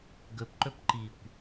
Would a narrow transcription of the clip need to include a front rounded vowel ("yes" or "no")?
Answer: no